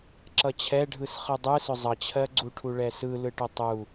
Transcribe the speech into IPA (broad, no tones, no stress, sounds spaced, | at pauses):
ǁ ʌ t͡ɕʰ ɛ ɖʱ ɯ s χ ɯ dˤ ɯ s ʏ zˤ ʌ t͡ɕʰ ɜ ɡ͡ǀ u ʈʰ u ɭ ɛ s ɯ l ɯ ʈ ʏ tˤ u